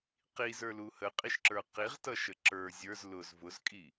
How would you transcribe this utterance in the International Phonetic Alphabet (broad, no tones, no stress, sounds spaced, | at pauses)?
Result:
q i z ə˞ l u h ə qʼ i ʃ ǁ ə˞ q i ʁ t ʌ ʃ ə ǁ ə˞ zʲ ə˞ z l ʊ z v ʊ z kʼ i